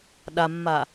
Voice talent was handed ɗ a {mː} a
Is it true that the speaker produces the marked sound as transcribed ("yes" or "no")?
yes